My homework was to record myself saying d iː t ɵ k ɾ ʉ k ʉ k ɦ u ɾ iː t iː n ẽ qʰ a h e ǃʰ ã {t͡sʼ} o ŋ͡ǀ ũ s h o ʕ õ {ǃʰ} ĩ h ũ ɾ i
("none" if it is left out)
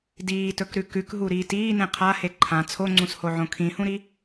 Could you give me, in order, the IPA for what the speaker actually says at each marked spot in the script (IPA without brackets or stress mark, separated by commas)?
t͡sʰ, kʰ